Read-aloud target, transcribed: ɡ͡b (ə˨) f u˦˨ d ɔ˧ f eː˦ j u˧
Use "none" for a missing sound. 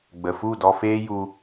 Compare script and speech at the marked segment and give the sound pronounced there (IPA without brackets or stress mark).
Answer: ə˨